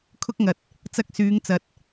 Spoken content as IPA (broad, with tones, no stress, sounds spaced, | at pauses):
kʰ ʊ˧ k̚ ŋ ɐ˨ t̚ | t͡s ɐ˧ k̚ s yː˨˧ ŋ t͡s ɐ˨ t̚